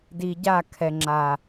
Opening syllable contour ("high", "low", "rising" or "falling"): low